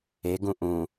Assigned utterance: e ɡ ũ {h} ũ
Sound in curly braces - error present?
yes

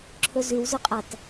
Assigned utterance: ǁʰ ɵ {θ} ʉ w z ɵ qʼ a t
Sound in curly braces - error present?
yes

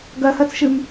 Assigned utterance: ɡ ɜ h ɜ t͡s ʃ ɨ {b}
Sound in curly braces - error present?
yes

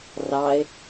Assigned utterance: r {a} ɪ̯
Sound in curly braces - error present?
yes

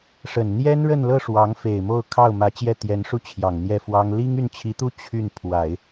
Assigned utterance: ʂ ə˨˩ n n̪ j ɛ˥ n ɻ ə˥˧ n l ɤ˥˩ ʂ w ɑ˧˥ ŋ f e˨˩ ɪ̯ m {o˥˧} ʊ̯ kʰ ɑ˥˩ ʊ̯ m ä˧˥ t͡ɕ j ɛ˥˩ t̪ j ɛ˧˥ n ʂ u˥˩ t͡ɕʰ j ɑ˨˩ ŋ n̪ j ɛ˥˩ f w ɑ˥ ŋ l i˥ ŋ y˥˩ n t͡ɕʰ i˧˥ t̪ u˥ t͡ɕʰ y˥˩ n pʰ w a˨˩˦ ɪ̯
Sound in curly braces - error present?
no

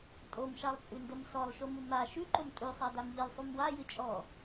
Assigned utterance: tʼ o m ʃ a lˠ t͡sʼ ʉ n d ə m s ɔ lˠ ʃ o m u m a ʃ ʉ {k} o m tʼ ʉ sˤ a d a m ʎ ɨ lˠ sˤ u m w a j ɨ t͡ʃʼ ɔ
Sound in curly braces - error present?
yes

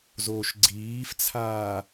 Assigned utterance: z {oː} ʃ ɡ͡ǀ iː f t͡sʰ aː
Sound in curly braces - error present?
no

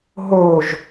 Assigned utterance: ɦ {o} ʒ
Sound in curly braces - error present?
no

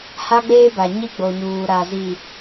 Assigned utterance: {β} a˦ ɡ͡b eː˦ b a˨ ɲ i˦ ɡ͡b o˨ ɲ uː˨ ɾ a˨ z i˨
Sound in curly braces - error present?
yes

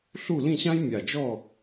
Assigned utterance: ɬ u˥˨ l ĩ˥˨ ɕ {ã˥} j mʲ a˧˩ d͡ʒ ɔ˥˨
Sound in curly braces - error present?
no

